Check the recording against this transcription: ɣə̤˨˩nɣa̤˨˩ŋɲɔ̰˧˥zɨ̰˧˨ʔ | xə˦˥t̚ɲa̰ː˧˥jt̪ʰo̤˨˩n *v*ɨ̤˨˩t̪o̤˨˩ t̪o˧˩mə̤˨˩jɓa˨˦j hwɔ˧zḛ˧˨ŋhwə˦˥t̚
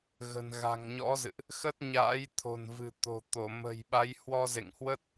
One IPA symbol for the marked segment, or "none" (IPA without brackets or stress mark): v